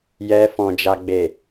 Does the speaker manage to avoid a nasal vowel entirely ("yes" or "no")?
no